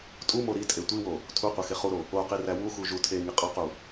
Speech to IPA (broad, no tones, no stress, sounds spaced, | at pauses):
tʼ u m o ɾ i tʼ e tʷ i w o | tʰ u qʷ e x e χ u ɾ o | o q i r æ w u x u ʒ u tʰ e ŋ i qʼ ɒ q u